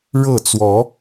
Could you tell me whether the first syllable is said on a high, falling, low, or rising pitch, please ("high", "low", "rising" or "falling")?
falling